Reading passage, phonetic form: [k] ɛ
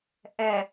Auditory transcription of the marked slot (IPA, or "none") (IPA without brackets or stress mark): ʔ